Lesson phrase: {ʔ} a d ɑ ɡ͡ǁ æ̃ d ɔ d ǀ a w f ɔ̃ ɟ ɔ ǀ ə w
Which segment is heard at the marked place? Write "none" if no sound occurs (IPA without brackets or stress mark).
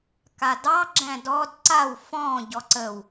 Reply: k